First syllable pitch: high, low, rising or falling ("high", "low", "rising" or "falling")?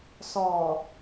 low